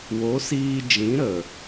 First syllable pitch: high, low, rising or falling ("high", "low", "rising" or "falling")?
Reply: rising